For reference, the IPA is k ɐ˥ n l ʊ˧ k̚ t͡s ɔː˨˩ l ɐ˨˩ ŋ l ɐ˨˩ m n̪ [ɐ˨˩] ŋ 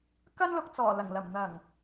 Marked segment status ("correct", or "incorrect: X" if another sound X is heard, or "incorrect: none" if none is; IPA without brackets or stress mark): correct